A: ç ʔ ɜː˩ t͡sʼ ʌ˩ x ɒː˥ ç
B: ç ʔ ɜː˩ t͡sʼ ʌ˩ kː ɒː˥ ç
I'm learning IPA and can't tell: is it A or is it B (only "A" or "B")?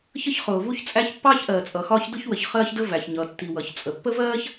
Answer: A